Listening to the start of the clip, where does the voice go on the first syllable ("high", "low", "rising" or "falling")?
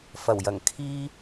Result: low